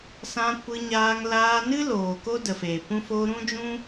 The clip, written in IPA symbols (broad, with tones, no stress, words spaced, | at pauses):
sã˧kʷɨ˧ɲaː˧ŋ laː˧nɨ˦ loː˨ko˦də˨feː˨ pũ˦ fo˧ ɾũ˦d͡ʒũ˦